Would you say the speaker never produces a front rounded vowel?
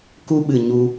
yes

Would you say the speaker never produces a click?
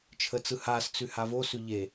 yes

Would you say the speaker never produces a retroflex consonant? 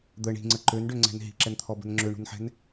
no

